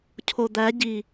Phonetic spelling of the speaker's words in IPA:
cʰ o d̪ æ ɟ i

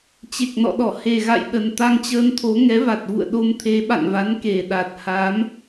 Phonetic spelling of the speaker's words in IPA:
t͡ɕ e˨˩ k̚ n ɔ̰˧˨ ɗ ɔ˧˩ h e˨˩ ɣ a̰˧˨ j ɗ ə˨˩ n t̪ a˧ ŋ t͡ɕ əː˧ n t̪ʰ o˨˦ ŋ ɛ˨˦ v a˨˩ t̚ v ṵ˧˨ ə̯ ɗ o˧ m t̪ʰ e˨˦ ɓ a̰˧˨ n v a˨˦ n k e˨˩ ɗ a˨˩ t̚ h a˨˦ m

